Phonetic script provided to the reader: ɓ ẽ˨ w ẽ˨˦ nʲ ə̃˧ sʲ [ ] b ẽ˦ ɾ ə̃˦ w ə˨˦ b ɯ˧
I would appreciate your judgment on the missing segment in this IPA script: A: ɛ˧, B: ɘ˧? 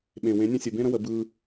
B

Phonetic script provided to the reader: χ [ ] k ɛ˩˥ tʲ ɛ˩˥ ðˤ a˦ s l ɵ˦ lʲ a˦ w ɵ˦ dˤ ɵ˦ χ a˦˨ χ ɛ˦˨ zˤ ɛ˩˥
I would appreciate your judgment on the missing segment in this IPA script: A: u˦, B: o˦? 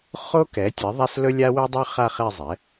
B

